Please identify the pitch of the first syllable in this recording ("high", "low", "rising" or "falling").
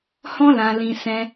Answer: high